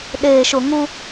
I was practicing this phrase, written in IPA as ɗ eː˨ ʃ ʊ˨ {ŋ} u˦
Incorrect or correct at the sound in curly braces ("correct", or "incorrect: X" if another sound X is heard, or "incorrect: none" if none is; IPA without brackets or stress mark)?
correct